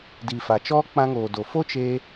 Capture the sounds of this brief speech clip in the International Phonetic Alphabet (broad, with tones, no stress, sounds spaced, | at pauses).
d i˨ f a˨ t͡ʃ ɔ˦ k͡p ã˧ ŋ oː˨ d o˨ f o˦ t͡ʃ eː˧